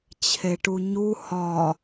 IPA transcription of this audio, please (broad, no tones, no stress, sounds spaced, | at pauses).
t͡ɕʰ e ʈ u ɲ u h ɒ